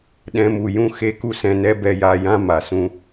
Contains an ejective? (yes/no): no